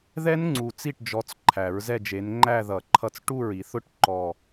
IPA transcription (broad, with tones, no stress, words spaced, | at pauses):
ðɛ˦˥nŋ͡ǀu˨˩ t͡si˥˩ʈd͡ʒɔ˨˦t͡s ǃʰæ˨˩˦ɹzɛ˥˧d͡ʒe˨˦n ŋ͡ǃæ˥˧ðʌ˨˩˦ ǃʰʌ˥˧t͡s ʈu˥˩ɹi˨˩˦θʊ˥˩ʈ ǃɔ˨˩